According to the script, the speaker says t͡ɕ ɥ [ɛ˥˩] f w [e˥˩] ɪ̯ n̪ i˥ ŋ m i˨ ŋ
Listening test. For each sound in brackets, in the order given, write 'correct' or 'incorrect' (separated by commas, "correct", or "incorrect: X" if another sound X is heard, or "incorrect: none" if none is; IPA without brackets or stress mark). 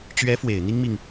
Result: incorrect: ɛ˧˥, incorrect: e˨˩